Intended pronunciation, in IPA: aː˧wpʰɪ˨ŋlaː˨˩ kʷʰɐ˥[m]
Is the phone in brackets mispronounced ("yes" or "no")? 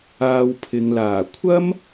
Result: no